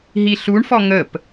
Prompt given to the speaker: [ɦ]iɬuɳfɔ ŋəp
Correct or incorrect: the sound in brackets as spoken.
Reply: correct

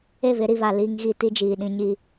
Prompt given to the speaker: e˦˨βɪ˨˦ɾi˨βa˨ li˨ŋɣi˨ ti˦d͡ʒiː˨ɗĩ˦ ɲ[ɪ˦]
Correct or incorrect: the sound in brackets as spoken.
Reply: incorrect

